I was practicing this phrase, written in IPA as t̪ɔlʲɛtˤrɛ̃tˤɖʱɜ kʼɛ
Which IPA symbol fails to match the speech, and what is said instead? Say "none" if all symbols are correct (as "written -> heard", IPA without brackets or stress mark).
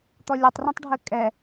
none